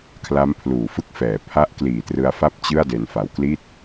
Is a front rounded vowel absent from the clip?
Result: yes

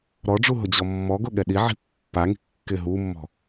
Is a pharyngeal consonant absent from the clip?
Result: no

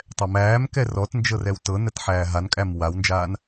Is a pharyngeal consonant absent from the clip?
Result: no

